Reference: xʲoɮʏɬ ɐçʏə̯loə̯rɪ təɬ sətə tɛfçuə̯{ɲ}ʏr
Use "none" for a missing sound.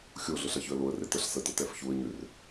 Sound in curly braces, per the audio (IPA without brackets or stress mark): ɲ